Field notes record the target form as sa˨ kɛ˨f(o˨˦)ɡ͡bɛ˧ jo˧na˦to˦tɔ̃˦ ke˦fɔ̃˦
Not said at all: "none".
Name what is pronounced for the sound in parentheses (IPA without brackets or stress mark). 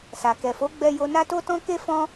o˨˦